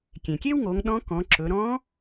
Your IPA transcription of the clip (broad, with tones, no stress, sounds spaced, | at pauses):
kʲ ẽ˩ kʲ e˥ w ŋ o˩˧ ŋ ɗ ɔ̃˧˥ k ɔ̃˩˧ ǁ ɵ˩˧ ɾ ɔ̃˧˥